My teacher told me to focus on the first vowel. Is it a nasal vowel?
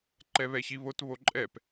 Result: no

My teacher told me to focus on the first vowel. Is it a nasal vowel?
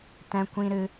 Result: yes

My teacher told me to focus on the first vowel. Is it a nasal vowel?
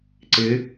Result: no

